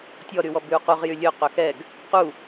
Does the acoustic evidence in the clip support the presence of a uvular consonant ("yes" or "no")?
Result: yes